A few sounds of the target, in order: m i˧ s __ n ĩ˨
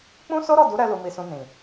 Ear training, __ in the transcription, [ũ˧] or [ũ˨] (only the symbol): ũ˧